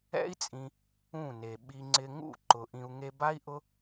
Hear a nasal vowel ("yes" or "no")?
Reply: yes